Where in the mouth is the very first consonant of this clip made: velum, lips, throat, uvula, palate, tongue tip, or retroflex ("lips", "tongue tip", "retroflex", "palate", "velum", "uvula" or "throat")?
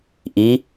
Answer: throat